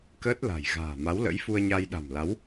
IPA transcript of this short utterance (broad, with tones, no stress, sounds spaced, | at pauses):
k əː˦˥ t̚ l a̤˨˩ j ɣ a̤ː˨˩ m a˨˦ w l ə̰˧˥ j f u˧ ə̯ ɲ a˧ j ɗ a̤˨˩ m l a˨˦ w